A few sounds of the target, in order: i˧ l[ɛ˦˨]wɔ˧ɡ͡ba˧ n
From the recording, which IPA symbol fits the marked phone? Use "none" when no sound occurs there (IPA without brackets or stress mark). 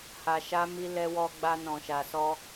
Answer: ɛ˧